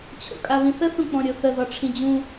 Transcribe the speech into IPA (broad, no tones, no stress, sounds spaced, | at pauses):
t͡ɕʰ o̰ kʼ a β ĩ θ ə θ ũ k͡p ɔ̃ ɾʲ o θ ə ð ɔ ʈ͡ʂʰ ĩ d͡ʑ ũ